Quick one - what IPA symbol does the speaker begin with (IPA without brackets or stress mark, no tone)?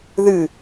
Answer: ð